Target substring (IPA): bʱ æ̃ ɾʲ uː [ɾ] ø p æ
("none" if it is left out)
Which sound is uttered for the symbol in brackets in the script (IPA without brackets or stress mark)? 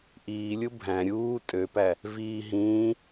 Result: tʼ